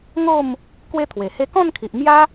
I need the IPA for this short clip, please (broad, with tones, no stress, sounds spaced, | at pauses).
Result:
ŋ o˥˧ m | k w e˦ t̪ʰ w e˨˩ h e˥˧ k ɔ̃˥˧ n kʰ i˨ ʔ m j a˦